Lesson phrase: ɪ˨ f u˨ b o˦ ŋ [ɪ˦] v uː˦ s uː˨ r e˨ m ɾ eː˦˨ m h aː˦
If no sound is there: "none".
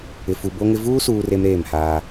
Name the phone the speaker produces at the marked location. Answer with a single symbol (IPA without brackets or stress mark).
ɪ˦